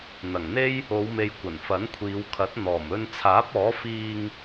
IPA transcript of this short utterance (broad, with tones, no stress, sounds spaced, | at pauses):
n̪ ɐ˨˩ ŋ n̪ e˥ j | o˨˧ w m e˨ j kʷ ɐ˨˩ n f ɐ˨˥ n kʷʰ iː˨˧ w kʰ ɐ˨˥ t̚ n̪ ɔː˨˩ m ɵ˧ n t͡sʰ aː˨˥ p̚ ɔː˨˥ f iː˧ ŋ